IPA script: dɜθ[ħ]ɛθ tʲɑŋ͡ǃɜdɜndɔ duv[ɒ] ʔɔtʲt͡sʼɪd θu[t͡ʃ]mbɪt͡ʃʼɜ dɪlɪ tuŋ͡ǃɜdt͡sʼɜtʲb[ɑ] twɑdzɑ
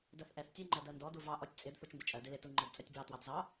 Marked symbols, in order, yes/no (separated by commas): no, no, yes, yes